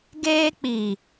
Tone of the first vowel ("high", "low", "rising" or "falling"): high